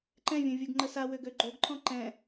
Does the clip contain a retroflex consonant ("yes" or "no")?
no